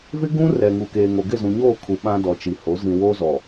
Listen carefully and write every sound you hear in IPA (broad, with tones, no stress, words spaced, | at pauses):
vɪ˦ ɡũ˦rɛ˨ ŋu˨keː˨ŋo˨ ɡɪ˦˨zũ˨ɲoː˦˨ kʰu˨ ɓã˦dɔ˨t͡ʃi˨ho˨˦ zĩ˨ woː˦zɔ˨